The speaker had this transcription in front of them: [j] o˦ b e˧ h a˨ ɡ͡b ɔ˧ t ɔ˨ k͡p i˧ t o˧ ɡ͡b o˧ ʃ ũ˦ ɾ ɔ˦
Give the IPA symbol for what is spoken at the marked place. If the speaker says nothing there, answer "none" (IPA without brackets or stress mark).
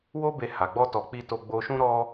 w